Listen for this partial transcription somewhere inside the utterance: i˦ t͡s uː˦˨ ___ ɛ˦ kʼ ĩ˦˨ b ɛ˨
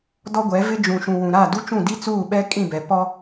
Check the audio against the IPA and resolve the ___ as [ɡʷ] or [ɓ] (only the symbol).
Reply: ɓ